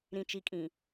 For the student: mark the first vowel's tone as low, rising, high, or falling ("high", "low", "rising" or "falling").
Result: low